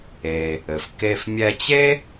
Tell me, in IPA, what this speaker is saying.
e˩ | ɘ˩ f k e˧ f mʲ ɛ˧ t͡ɕ e˥

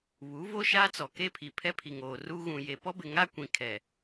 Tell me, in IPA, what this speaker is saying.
β u˨˦ v o˦ ʃ aː˦ t͡s ɔ˨ k e˦ pʰ i˨ pʰ ɛ˦ pʰ i˨ ŋ oː˨ r u˦ ɣ ũ˨ j e˨ p ɔ˦ b ɪ˨ ŋ a˦ kʷ ĩ˨ kʰ ɛ˨

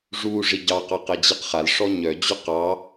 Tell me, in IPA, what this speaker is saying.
ʐ u ʐ i ɟ ɑ q ɑ q ɛ d͡ʑ i q χ a l ʂ ɔ ɲ œ d͡ʑ ʏ q ɑ

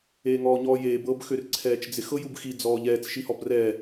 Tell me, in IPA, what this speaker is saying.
eː ŋ ɔː ɲ ɔː j eː b ɤ b x ø r ǀʰ ɛː t͡ʃ d͡z ɪ x ɤ j u b x i d͡z ɔː ʎ ɛː t͡s ʃ i h ɔ b r ɛː

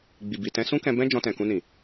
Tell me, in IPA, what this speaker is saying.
ɡ͡b i˨ b i˨ t ɛ̃˧ s ũ˦ k ɛ̃˧ b ɛ̃˦ d͡ʒ ɔ̃˧ t ɛ̃˨ k ũ˧ n ĩ˨

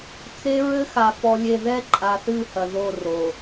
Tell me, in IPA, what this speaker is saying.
t͡s e˦ ɹ ɘ˦ x a˨ f ɔ˨ lʲ e˨ ð ɛ˦ ǃʼ a˨ θ ɨ˦˨ h ɐ˨ ð o˦˨ r o˨

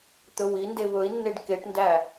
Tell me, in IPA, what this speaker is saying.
t̪ ɵ w i n d e β ɵ i̯ nː e ɖ k e ʈ n d æ

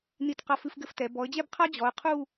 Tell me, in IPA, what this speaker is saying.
n i˧˩ t q a˧ f ɨ˧ f ɡ ɘ˧ f t ɛ˩˧ b ɔ˩˧ ə̯ d͡ʑ ɛ˥˧ b qʰ a˥ d͡ʑ ɔ˩˧ ə̯ qʰ u˥˧

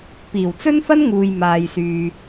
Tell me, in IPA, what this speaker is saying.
p iː˨˩ w t͡s ɵ˥ n f ɐ˥ n ŋ uː˨ j m aː˨ j s yː˨

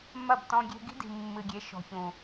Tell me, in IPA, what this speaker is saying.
m ɐ˦˨ b t ɔ̃˧ ɡʲ e̤˧ ɡ i̤˦ d i̤˨ mː ɨ˨ ɡʲ e˨˦ ʃ ɔ̤˨ ç ũ˨

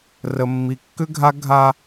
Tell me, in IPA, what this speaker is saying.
r ə˨ mː i˨ kː ʏ˦ ɡʱ a˦ ɡʱ a˦

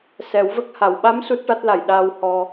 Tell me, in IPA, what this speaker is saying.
s ɛ˨˩˦ w v ə˦˥ k̚ h a˨˩˨ w ɓ a˧˥ m s u˦˥ t̚ ʈ a˦˥ t̚ l a˨˩ j ɗ aː˧ w h ɔ˧

